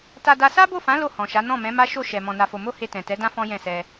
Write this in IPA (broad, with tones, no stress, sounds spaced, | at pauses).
t a˧ d a˧ s a˦ b o˦˨ f ã˨˦ l o˦˨ h ɔ̃˨ ʃ a˨˦ n ɔ̃˦˨ m ɛ̃˨˦ m a˦ ʃ o˦˨ ʃ ɛ˨ m ɔ̃˧ n a˧ f o˧ m o˦ h e˧ t ɛ̃˨ t ɛ˨˦ d ã˦ f ɔ̃˦ j ɛ̃˦˨ s ɛ˧